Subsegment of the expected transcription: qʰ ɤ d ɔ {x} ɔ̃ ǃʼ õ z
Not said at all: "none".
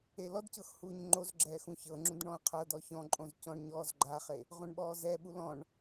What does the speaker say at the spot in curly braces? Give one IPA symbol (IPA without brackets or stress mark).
ç